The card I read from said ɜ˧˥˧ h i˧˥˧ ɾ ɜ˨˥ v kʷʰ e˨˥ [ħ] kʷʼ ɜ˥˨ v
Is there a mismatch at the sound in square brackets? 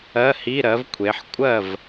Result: no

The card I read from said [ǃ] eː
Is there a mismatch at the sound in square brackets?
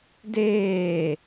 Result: yes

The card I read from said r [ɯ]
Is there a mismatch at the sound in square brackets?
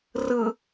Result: no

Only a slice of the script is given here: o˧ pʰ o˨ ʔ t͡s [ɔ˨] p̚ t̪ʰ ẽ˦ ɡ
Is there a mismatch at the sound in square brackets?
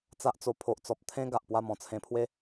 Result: no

